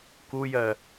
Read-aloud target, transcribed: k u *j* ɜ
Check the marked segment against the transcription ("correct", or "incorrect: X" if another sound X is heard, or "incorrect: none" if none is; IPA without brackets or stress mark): correct